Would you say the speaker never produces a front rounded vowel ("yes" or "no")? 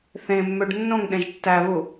no